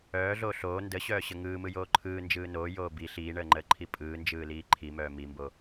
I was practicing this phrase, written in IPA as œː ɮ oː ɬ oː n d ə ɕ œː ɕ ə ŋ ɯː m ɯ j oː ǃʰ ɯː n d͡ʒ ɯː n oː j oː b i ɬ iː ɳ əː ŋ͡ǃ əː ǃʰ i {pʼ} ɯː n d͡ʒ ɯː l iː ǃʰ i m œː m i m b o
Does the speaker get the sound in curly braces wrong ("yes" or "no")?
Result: no